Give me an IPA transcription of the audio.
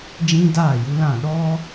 d͡ʒ ĩ˦ d aː˦˨ j u˦ l ã˦˨ ɗ ɔ˦

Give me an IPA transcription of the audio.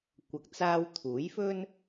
kʷ ɐ˨ k̚ t͡s aː˧ w t̪ʰ uː˨˥ j f ɵ˥ n

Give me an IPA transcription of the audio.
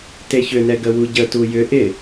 t e ç ʏ n ɛ ɡ ə w u ɟ ə t u j ʏ ʔ ɪ

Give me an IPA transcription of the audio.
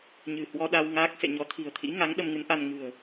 ɲ ɨ̤˨˩ h w ɔ˧ ɗ a˧ w ŋ aː˦˥ k̚ s ḛ˧˨ ɲ ɔ˨˦ t̪ʰ i̤˨˩ ə̯ t̪ʰ ḭ˧˥ ŋ a˨˦ ŋ ɗ ə˧ m ŋ ɨ˨˦ n ʔ a˧ n ŋ ɨ̤˨˩ ə̯

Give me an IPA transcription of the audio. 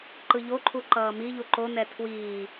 ǃ ɯ ʎ o ǃʰ u ǃ ʌː m i ʎ u ǃ o n ɛ tʰ w iː

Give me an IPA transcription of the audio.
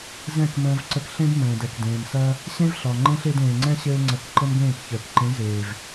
z ɛ̃˦˨ k m ə̃ː˧ v ǀ ə˧ k ɬ ẽ˦ d m ə̃ː˨ d ɛ˨ k d ẽː˨ m s ɐ˧ | ɕ ẽ˦ v ɬ ɒ˨ ŋ͡ǃ ẽ˦ ɬ e˧ d ẽː˨ ŋ͡ǀ ɛ̃˦ ɕ ɘː˦ ŋ͡ǀ ɐ˧ k ǃ ə˦ m ɡ ẽː˦˨ k ç əː˨ k ǃ ẽ˨˦ z eː˨ v

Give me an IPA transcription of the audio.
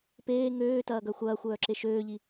p eː ŋ øː t ɐː ɡ œ xʷ ɐː xʷ œː ǁ e ʃ øː ʎ i

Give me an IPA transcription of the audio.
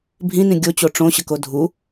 bʱ ĩ n ĩ ɡʲ o t͡ɕ o ʈ͡ʂ õ ɕ ə k o dʱ u

